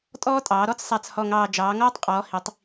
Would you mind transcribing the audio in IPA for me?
tʼɔː˦tʼɑː˩˧ ɾɔ˦t͡ssˤa˨˩t͡shɔ˨˩ŋɑː˨˩ d͡ʒɑː˩˧ŋɔː˦tˤqʼɔː˩˧ hi˩˧tˤ

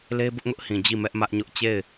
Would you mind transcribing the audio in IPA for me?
le˦bʊ˦ʔŋʊ˦ʔhĩ˨ d͡ʑi˦˨ mɛ˦ʔmä˦ʔɲʊ˦ʔ t͡ɕe˦˨ɪ̯

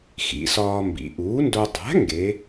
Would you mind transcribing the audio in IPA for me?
xḭ˩˧sɒː˧mbḭ˩˧ ʔuː˩˥ndo˧ dˤæ̤˩˥ ŋɡe˩˧

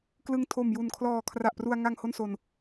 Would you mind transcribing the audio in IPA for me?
klɯ˧ŋtʰo˨˩m ju˨˩nkʰlɔː˨˩ kʰra˨˩ʔpru˧a̯ ŋa˧ŋ ho˥˩nso˧n

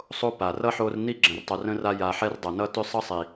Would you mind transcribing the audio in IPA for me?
sˤo˦ pa˩rʌ˥ħo˦r ni˥ ɡ͡ǁə̃˨rtˤɵ˨r ə̃˥ra˦ ja˨ħɛ˦r dˤʌ˩nʌ˦ tʏ˥sˤʌ˥ sˤi˩

